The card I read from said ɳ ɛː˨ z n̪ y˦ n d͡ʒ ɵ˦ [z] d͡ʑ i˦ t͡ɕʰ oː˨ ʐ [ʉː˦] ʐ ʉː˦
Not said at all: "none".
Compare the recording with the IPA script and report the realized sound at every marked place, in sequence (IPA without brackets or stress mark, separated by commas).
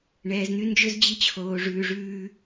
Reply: z, ʉː˨